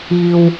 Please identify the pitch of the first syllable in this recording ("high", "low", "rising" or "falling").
low